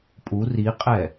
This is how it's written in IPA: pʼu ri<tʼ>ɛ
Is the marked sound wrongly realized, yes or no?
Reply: yes